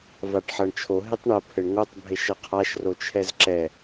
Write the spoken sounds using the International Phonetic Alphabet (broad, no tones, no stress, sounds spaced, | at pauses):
v a ʈ ħ ɐ ɳ t͡ʃʰ o ɦ e tˤ ɳ ɐ pʰ ɘ ɳ ŋ o tˤ bʱ e ʃ ɐ qʰ a ʃ r o t͡ʃʰ ɛ z ǁ ɛ